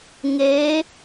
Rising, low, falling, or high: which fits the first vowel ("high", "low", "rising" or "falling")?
rising